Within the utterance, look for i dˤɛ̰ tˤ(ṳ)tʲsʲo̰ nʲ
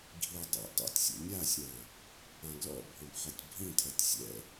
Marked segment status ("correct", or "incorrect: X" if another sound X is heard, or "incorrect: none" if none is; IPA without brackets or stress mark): incorrect: ṵ